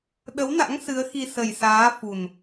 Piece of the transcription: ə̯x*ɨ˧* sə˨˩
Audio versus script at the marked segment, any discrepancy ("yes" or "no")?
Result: yes